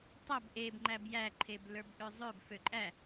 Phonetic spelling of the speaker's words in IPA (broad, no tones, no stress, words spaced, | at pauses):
tˤæb ʔeb ŋ͡ǃæbjæ ǃʰeblə˞bʔøzˤøb føǃʼæ